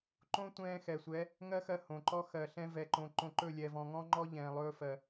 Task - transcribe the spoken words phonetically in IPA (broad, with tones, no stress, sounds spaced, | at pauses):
ǃ õ˦ tʷ ɛ̃ː˧ x ɛ˨ sʷ ɛ˨˦ | ŋ ɜ˦ x ɜ˧ h õ˨ ǃ ɔ˦ x ɜ˨ ɬ ɛ̃˦ v ɛ˧ ǃ õ˧ ǃ õ˧ ǃ ɵ˦˨ lʲ ɛ˨ v ɔ̃˨ ŋ ɔ̃˦ ŋ͡ǃ ɔ˦ ʎ ɛ̃ː˨ lˠ ɵː˧ f ɜ˨